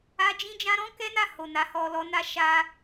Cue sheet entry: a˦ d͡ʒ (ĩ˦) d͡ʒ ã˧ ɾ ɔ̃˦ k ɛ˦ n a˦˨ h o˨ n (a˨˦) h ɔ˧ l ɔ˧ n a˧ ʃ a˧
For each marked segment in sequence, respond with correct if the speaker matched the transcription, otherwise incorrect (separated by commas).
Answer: correct, correct